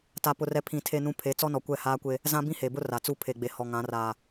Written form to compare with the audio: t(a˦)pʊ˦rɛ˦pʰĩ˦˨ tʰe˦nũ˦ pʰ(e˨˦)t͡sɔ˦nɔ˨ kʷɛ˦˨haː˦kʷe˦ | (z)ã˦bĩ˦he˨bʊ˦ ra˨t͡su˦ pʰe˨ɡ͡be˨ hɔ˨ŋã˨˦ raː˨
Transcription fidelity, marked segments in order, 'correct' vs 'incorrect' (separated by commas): correct, correct, correct